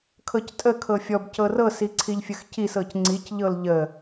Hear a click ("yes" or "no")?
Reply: yes